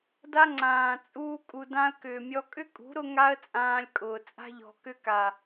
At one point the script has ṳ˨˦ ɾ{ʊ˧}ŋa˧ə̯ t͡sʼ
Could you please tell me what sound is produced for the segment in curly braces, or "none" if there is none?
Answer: ʊ˧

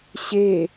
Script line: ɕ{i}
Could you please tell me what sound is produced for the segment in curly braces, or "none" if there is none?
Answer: e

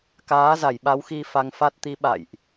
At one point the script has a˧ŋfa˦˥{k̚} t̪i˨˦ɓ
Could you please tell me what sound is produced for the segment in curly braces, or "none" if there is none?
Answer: t̚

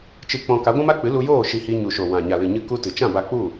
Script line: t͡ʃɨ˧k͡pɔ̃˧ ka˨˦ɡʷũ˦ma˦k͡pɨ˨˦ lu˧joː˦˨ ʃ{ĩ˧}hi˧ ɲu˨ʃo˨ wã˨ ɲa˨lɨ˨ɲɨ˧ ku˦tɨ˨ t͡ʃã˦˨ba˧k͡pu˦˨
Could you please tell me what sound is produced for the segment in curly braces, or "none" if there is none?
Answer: i˧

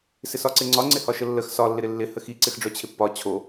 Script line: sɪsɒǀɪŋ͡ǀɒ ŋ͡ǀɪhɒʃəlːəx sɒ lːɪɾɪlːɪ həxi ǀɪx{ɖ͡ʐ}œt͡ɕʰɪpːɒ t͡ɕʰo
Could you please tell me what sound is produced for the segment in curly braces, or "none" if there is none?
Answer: ɖ͡ʐ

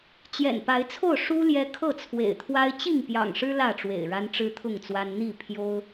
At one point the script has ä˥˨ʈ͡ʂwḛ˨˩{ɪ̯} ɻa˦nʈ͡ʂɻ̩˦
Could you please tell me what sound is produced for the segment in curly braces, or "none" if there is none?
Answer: ɪ̯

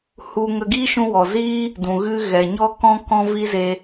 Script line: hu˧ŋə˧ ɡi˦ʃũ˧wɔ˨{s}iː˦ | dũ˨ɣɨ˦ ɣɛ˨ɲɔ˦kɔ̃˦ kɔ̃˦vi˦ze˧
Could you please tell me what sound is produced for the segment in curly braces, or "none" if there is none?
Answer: z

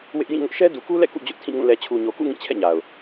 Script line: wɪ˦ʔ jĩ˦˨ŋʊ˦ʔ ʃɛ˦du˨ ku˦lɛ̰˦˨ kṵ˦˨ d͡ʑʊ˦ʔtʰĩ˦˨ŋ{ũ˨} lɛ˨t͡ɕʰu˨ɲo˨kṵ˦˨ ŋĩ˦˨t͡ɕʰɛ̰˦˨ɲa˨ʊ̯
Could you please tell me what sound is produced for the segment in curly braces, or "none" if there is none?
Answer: ũ˦˨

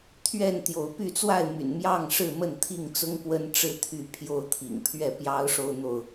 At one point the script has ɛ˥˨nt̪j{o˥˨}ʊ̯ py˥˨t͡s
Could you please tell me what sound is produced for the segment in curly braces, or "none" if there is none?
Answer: o˨˦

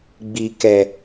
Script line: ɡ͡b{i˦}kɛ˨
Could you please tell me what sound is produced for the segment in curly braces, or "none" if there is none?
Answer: i˨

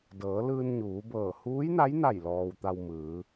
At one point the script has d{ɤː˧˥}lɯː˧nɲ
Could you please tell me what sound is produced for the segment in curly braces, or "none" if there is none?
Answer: ɤː˩˧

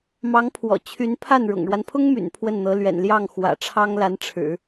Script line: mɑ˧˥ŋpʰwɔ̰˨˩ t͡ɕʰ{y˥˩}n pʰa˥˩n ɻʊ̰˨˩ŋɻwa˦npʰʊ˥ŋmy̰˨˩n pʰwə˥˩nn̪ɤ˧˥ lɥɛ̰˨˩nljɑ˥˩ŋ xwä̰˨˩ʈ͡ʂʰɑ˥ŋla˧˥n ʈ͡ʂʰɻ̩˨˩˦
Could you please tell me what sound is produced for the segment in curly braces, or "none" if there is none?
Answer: y˧˥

